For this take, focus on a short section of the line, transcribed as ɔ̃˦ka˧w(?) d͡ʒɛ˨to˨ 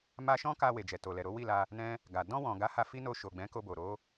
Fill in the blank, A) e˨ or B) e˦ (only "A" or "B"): A